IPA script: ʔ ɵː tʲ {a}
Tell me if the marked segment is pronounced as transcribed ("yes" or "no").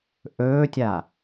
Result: yes